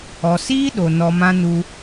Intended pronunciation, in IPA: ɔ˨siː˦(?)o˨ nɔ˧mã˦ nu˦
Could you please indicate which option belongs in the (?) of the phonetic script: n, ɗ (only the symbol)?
ɗ